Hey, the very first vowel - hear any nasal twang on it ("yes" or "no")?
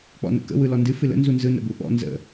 no